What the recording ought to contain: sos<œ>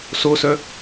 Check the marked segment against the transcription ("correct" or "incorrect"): correct